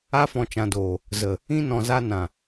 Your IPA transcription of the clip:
a˧ f ɔ̃˨ t͡ʃ ã˨ d oː˨ | z ə˨ | ĩ˧ n ɔ̃˨ z a˧ n ã˨

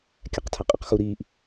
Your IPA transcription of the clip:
kʲ æ q tʰ æ qʼ e q x u ɾ iː ʔ

